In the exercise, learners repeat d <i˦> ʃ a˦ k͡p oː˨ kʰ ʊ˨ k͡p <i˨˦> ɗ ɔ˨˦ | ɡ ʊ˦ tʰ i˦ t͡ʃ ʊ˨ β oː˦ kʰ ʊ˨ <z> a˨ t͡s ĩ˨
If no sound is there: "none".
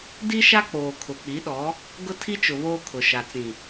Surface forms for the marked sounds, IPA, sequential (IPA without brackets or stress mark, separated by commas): i˦, i˨˦, ʃ